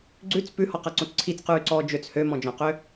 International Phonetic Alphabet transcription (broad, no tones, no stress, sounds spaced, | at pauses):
ɡ͡ǀ ʉ t͡s p ʉ h ɔ q a ǀ õ t͡s ǀʰ i t͡s q ʉː ǀ ɔː d͡ʒ ø t͡s h ø m ɔ̃ d͡ʒ ɔ̃ q ø